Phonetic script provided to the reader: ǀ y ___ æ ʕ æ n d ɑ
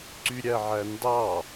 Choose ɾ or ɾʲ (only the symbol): ɾʲ